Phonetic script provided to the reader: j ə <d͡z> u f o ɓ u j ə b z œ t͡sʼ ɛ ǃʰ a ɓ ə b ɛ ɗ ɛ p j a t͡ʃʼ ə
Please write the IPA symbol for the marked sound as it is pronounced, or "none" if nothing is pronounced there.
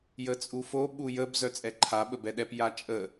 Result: t͡sʼ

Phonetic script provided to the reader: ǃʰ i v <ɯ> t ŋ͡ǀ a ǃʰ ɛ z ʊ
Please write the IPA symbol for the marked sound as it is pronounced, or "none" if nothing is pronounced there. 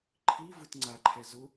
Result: ɯ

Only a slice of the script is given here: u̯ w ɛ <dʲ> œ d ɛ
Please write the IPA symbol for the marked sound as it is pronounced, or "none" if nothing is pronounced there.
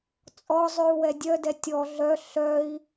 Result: dʲ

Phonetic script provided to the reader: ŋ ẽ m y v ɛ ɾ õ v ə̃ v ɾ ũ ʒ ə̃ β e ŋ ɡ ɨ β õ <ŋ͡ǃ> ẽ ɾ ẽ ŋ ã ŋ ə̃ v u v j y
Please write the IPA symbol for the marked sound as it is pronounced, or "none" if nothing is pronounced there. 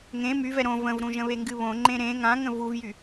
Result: ŋ͡ǃ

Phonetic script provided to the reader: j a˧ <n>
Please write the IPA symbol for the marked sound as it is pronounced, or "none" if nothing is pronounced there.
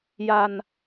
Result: n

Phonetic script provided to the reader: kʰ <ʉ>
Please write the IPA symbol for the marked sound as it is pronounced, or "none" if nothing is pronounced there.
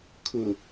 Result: ʊ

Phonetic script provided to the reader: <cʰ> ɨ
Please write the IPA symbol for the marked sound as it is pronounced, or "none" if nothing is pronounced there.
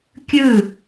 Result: kʲ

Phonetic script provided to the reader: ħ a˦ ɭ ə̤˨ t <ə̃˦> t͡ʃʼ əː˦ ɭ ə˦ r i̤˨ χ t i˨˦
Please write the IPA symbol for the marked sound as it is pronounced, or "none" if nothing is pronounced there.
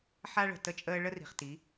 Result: ə˦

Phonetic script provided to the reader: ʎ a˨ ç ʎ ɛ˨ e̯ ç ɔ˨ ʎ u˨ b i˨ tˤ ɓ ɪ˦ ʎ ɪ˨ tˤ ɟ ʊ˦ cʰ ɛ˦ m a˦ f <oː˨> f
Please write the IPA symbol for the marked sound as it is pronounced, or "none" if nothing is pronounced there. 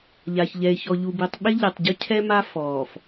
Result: ɔː˨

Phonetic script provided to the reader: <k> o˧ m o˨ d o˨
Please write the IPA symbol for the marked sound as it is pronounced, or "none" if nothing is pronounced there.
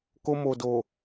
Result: k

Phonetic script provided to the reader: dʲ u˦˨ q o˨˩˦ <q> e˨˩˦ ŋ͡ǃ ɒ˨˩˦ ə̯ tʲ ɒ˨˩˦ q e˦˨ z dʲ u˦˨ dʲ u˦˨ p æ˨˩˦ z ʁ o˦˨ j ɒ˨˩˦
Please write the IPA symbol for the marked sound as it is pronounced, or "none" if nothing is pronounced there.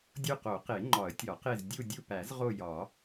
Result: q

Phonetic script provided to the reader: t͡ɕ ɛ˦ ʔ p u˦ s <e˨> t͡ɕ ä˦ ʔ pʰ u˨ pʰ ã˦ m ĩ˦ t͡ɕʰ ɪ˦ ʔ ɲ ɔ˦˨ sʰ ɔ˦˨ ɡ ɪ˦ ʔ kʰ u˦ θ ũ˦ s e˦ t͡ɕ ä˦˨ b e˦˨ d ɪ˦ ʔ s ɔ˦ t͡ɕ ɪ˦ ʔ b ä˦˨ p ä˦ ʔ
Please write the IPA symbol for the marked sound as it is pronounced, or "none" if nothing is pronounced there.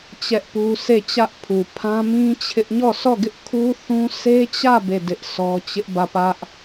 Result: e˦˨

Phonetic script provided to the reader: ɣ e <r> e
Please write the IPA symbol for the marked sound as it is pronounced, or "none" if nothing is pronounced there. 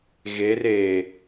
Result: r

